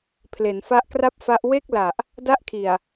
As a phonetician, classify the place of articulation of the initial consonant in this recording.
labial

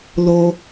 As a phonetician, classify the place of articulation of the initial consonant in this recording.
alveolar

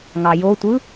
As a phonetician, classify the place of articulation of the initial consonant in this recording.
velar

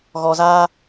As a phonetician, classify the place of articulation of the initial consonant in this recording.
velar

